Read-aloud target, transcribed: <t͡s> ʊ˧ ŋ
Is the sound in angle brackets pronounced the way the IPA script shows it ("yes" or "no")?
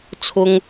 no